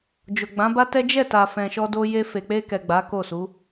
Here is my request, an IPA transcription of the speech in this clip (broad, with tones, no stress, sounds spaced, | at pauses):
d͡ʒ o˨ ɡ͡b ã˨˦ b a˦ t ɛ˦ d͡ʒ ɛ˦˨ t a˨ f ɛ̃˨ ʃ ɔ˧ d o˧ j e˧ f e˨ k͡p e˧ k ɛ˨ ɡ͡b a˨˦ k o˦˨ s u˨˦